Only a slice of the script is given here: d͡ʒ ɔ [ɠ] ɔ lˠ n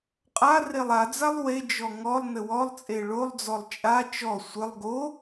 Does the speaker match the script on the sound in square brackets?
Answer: no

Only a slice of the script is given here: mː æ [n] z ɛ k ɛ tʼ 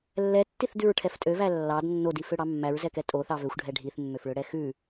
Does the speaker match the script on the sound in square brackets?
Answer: no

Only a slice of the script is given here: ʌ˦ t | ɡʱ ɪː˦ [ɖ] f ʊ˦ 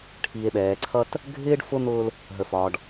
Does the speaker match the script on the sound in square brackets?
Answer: yes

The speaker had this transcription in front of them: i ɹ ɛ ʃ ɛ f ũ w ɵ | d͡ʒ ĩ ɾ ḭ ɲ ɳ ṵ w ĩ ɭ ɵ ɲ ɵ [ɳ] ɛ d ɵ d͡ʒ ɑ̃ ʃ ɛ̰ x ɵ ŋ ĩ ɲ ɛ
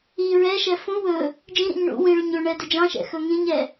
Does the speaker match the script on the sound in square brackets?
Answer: yes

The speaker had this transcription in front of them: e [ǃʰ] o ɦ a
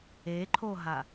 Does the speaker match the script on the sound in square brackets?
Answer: yes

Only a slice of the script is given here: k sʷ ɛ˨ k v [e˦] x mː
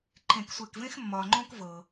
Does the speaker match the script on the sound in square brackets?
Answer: no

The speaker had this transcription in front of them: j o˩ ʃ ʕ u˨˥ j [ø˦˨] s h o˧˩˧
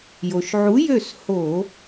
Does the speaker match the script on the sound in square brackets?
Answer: yes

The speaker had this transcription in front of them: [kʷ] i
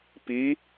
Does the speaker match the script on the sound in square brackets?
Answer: no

